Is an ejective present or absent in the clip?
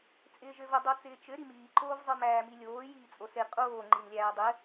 present